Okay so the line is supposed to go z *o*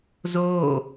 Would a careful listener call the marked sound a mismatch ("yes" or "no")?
yes